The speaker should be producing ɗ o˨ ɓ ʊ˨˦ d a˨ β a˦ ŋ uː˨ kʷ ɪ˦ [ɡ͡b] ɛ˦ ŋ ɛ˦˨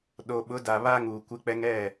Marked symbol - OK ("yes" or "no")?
no